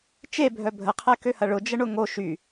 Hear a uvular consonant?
yes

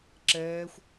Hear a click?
yes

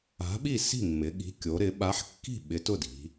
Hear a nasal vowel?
no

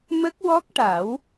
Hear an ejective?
no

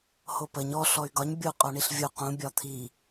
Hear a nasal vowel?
yes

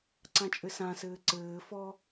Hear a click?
yes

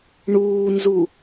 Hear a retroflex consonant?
yes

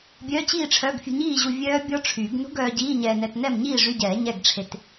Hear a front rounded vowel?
yes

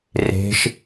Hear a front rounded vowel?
no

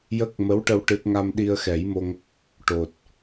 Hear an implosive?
yes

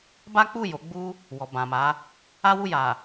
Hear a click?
no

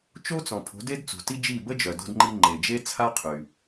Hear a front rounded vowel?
yes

